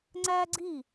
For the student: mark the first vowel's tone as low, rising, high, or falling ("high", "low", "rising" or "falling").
high